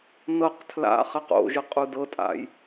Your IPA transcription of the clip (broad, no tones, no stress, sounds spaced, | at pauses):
n ɤ q tʰ l a̰ χ ɛ q o̰ ʒ ɯ qʼ u d ɤ tʼ a̰ j